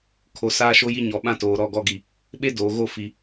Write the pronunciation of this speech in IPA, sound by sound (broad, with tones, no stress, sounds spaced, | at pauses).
kʰ o˨ s aː˦ ʃ o˦ j i˦ ɲ ɔ˨ ɓ ã˦ t oː˨ ɾ ɔ˦˨ ɡ ɔ˦˨ ɡ i˨ | ɓ e˦ d oː˨ ɣ o˦˨ f i˨